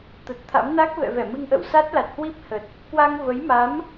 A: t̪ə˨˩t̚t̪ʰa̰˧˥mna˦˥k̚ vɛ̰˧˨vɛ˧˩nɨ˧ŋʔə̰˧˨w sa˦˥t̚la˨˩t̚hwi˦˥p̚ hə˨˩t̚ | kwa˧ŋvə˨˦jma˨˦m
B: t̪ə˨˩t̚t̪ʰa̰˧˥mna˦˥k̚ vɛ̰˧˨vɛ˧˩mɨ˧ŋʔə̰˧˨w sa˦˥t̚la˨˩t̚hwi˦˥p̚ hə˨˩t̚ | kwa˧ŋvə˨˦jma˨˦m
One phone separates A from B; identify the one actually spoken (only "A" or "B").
B